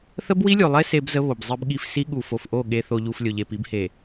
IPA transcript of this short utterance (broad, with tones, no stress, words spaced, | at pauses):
θə˦bwi˦lʲu˨lˠe˦ se˦bzə˦ βo˨bzˤi˦bɠi˦f si˦ɠu˨ fo˨fʔo˦˨ ɠe˨θo˨ʎu˨f lʲo˨ʎe˨pi˨˦bhe˨